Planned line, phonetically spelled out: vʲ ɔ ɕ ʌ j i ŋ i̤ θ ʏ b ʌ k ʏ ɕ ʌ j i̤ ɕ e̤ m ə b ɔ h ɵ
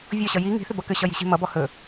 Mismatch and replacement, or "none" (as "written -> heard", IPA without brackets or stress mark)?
ə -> ʌ